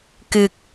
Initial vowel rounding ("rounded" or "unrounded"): unrounded